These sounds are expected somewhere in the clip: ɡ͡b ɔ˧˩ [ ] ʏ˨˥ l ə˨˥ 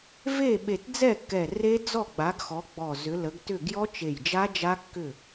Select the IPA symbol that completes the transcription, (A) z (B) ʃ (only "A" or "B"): A